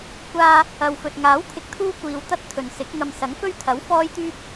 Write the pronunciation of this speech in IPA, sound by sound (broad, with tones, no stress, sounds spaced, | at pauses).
kʷ aː˧ | ɐ˨ w f ɵ˨ t̚ ŋ aː˨˥ w t̪ʰ ɪ˨˥ k̚ t̪ʰ uː˥ kʷ iː˨˧ w t̪ ɐ˥ t̚ t̪ʰ ɵ˨ n s ɪ˨˥ k̚ ŋ ɐ˧ m s ɐ˨˥ ŋ f ɵ˥ ɥ t̪ʰ ɐ˨˥ w f ɔː˥ j t̪ yː˥ p̚